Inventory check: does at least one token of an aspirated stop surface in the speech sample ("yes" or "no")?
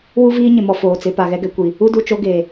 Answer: no